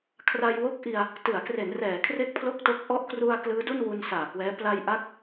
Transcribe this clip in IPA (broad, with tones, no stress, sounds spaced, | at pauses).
kʰ r a˧ j w o˦˥ k̚ ʔ i˧ a̯ | t ɯ˩˦ a̯ k r e˩˦ n r ɛː˩˦ kʰ r e˥˩ k̚ pʰ l o˥˩ k̚ t o˦˥ k̚ ʔ ɔ˦˥ ʔ k r u˧ a̯ k l ɯː˦˥ d u˥˩ n w u˧ n s aː˨˩ k w ɛː˦˥ p l a˧ j ʔ a˦˥ k̚